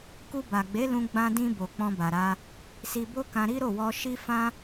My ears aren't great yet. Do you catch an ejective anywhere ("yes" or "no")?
no